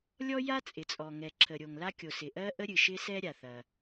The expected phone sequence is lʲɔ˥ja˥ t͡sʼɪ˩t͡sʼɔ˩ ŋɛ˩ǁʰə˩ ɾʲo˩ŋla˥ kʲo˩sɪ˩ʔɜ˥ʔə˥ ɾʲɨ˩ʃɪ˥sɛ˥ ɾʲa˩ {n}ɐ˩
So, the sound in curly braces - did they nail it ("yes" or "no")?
no